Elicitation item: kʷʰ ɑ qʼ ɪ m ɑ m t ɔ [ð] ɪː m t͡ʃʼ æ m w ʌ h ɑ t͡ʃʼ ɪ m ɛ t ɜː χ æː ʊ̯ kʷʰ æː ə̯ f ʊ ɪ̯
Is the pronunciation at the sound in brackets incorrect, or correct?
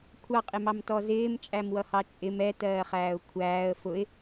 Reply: incorrect